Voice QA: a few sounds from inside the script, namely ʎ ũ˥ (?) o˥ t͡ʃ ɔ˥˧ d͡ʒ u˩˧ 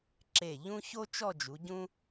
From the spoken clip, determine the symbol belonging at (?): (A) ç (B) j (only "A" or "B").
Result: A